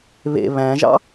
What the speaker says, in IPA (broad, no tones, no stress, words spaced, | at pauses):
βḛ βæ̃ʒɑ̰